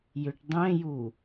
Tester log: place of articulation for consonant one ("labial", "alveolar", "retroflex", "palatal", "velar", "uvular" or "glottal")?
palatal